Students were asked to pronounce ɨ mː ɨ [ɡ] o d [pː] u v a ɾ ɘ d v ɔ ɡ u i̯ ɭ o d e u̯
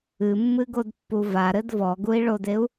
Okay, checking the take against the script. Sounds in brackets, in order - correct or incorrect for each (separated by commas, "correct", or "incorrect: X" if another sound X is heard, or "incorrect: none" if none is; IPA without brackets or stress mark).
correct, correct